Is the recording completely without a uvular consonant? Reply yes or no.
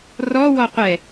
no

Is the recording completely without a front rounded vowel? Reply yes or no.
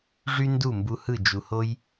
no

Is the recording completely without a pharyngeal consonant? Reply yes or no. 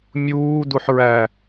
no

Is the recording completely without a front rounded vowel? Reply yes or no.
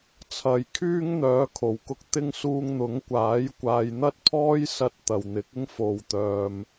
no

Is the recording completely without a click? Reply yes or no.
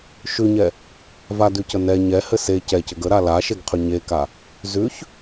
yes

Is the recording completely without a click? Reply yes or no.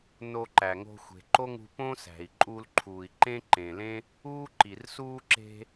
no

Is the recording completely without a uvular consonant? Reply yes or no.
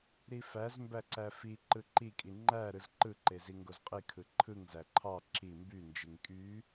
no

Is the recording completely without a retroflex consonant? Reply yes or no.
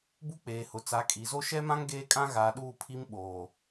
yes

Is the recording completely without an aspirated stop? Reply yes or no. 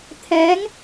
no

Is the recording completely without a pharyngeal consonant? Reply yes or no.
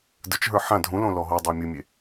no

